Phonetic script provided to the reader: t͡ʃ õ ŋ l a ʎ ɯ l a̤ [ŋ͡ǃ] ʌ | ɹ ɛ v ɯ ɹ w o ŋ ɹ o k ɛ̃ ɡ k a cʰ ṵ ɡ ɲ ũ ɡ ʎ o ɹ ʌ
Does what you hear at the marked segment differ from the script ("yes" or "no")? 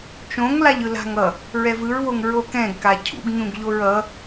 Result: yes